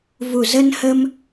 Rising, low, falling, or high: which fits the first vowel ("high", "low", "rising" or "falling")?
low